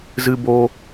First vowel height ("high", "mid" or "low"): high